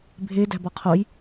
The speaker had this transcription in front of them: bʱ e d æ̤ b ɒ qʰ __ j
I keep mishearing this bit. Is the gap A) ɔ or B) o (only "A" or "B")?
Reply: B